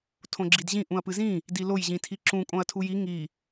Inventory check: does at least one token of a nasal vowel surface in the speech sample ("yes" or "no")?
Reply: yes